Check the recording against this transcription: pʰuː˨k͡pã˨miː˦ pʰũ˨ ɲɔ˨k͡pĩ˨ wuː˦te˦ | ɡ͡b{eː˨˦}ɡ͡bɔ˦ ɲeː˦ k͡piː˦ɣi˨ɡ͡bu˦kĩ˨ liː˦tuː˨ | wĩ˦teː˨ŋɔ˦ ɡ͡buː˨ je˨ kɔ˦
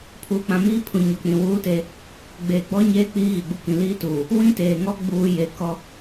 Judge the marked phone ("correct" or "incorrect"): incorrect